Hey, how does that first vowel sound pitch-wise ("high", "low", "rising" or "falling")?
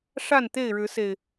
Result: falling